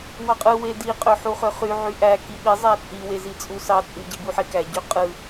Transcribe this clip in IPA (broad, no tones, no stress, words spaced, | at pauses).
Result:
wɑqʼɯ wedi qʼøħuχøχy ʕyʔæ kiɓi zˤæt͡sʼi wezit͡sʼusɑ t͡sʼy ɟibuħekæ ɟøqʼɯ